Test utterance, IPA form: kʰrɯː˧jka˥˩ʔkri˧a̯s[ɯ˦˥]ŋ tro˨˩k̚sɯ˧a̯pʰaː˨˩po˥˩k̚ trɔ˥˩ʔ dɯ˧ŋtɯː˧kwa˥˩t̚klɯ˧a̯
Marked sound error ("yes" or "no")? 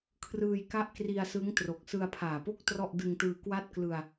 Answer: no